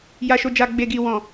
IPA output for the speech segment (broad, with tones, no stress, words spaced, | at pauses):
ja˨ʃo˨d͡ʒa˨ ɡ͡be˨ɡi˨wɔ̃˨